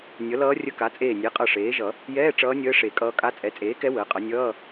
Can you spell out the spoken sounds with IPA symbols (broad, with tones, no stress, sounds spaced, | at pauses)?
nʲ ʌ˩˥ l ʌː˧˥ rʲ ə˧˥˧ k a˩˥ t͡sʼ eː˧˩ nʲ e˩˥ qʼ ʌ˧˩ ʂ eː˩˥ ʒ ʌ˨˩˦ | j ɛː˧˥˧ ʈ͡ʂ ʌː˧˥ nʲ əː˧˥ ʂ e˨˩˦ kʼ ʌː˧˥ kʼ a˧˥˧ t͡sʼ ɛ˩˥ t͡sʼ eː˩˥ k ɛ˧˥ w əː˩˥ qʼ ʌ˩˥ nʲ ʌː˧˥˧